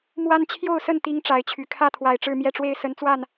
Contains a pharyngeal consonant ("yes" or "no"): no